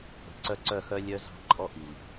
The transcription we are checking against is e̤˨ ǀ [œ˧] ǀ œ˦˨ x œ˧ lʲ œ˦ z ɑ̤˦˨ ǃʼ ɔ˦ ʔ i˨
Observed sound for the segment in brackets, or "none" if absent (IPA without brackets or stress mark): œ˦